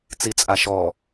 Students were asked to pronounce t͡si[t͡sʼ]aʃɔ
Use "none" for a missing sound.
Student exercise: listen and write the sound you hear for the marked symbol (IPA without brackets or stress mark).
t͡sʼ